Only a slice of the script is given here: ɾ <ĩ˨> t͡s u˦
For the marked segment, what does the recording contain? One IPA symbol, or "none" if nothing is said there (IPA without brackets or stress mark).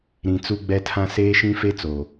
ĩ˨